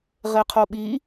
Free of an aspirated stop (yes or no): no